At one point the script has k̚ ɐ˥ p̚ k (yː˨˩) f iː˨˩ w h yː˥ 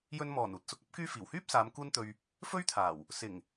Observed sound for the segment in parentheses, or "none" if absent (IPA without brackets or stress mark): yː˥